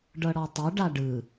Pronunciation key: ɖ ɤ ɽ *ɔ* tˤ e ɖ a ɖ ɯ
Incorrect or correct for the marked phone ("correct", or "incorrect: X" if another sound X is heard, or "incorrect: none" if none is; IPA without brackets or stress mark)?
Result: correct